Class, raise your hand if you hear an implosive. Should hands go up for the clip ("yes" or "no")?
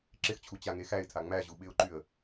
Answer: yes